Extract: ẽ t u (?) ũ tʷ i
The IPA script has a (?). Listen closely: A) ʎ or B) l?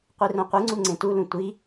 B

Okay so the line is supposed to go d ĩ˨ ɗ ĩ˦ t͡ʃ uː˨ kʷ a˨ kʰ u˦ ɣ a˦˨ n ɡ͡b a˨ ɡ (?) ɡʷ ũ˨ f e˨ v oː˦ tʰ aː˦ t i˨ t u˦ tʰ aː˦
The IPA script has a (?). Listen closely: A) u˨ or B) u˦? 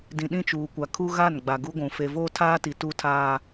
B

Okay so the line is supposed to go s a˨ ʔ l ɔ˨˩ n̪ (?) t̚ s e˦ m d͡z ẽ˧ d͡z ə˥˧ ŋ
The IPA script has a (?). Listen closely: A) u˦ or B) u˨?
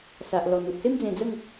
B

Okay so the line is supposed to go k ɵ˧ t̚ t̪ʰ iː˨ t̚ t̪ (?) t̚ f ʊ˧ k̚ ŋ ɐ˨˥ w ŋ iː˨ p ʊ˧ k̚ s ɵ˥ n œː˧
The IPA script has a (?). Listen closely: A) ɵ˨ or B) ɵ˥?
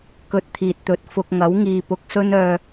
A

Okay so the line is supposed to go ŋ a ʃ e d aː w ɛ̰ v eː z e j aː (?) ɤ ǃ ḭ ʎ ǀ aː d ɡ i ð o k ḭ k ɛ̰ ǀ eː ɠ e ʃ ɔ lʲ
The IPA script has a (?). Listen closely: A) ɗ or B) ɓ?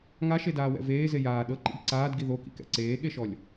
A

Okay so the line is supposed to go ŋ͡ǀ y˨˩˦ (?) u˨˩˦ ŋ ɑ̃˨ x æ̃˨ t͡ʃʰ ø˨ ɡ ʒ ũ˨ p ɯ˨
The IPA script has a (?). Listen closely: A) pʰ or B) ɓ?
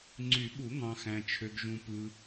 B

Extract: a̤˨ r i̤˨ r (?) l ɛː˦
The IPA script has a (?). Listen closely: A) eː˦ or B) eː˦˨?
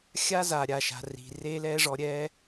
A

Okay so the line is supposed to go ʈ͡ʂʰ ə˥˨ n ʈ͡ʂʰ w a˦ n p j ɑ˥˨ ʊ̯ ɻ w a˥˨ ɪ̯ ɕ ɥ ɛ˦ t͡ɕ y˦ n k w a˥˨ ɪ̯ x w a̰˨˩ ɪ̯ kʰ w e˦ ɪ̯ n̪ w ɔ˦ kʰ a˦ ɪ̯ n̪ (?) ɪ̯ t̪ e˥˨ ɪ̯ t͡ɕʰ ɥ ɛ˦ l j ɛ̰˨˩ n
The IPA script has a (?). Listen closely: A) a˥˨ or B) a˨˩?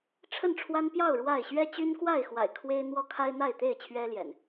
A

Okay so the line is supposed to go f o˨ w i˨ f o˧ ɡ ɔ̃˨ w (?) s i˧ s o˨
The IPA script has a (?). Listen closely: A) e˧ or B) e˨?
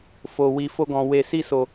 B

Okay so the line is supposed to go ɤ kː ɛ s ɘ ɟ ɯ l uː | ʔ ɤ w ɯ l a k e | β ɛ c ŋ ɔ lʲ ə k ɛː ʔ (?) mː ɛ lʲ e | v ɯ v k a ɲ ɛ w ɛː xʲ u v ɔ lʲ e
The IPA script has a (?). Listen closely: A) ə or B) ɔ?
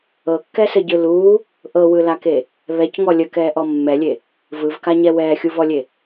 B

